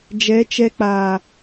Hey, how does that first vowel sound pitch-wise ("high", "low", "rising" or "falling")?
rising